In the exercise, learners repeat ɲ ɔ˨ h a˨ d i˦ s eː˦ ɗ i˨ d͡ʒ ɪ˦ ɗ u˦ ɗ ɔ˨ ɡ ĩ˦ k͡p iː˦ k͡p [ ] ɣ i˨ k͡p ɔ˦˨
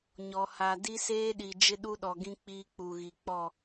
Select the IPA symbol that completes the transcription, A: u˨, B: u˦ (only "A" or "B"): A